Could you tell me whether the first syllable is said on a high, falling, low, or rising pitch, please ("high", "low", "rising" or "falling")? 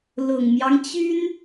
low